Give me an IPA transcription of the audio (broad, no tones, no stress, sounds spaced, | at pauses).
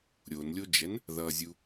ɾʲ o n lʲ o d͡ʒ ɛ n | ð ʌ zʲ u